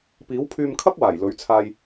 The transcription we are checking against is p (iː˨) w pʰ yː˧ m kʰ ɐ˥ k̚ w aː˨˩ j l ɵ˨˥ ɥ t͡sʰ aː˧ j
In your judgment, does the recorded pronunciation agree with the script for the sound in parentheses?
no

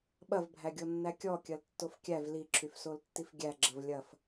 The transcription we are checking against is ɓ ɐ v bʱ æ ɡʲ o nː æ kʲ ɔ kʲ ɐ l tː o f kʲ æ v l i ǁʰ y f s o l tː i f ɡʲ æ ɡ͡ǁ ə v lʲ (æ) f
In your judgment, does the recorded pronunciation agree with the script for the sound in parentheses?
no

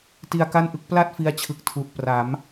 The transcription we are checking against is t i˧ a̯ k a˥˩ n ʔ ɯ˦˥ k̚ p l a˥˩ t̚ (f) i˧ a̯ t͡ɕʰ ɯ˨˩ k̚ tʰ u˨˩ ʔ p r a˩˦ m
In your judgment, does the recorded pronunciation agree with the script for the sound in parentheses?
yes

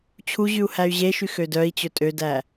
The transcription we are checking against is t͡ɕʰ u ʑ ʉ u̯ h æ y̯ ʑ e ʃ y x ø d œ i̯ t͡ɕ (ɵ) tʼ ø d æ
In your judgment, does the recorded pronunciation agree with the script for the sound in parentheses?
yes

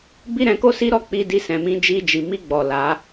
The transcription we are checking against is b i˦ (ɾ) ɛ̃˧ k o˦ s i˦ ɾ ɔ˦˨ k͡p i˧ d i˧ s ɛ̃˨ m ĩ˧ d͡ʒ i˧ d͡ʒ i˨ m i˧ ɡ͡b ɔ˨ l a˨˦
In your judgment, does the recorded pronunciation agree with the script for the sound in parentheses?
yes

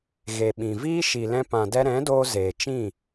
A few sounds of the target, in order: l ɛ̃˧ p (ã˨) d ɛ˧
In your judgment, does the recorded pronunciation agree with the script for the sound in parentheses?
yes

